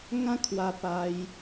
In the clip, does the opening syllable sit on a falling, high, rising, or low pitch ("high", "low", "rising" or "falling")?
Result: high